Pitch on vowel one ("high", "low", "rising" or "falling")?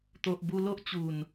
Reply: low